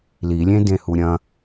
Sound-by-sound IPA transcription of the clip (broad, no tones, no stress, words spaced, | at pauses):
lilʲẽ dẽhuɾʲɐ̃